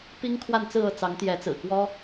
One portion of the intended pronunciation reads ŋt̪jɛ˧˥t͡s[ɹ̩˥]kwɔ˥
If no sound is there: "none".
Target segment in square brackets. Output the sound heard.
ɹ̩˨˩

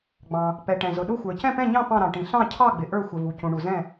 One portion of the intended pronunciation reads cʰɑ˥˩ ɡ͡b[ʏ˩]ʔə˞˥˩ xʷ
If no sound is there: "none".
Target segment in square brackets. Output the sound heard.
ɪ˩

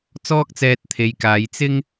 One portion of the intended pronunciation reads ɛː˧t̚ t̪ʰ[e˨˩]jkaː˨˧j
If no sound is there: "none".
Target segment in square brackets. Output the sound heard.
e˨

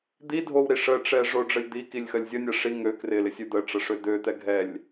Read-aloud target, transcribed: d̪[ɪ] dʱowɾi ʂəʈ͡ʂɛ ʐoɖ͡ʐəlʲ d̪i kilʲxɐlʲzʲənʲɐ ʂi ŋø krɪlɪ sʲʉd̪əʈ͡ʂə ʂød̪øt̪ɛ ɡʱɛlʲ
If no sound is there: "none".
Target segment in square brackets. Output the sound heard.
i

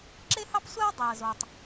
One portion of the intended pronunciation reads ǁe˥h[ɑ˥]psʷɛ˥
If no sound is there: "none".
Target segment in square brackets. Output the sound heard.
ɑ˥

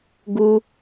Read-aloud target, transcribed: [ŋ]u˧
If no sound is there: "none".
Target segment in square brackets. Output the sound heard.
ɡ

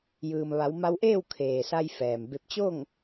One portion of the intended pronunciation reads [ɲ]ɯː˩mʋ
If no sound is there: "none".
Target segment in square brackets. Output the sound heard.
j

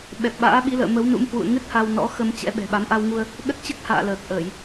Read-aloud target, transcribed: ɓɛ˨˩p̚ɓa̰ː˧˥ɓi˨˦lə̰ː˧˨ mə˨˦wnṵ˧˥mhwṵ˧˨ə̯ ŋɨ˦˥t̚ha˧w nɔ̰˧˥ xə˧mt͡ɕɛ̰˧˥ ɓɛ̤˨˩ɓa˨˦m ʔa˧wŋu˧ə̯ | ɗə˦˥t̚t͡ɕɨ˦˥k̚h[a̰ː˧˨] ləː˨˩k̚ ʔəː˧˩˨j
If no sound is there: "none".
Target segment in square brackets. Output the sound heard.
a̰ː˧˨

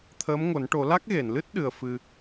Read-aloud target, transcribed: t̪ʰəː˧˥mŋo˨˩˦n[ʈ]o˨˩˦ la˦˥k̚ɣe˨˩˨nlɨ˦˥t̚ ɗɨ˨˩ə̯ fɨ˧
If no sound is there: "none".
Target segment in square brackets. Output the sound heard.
ʈ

